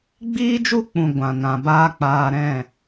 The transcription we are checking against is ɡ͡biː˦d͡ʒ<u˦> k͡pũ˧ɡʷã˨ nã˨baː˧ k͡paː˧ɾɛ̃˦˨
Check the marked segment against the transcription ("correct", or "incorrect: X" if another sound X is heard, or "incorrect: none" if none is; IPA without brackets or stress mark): correct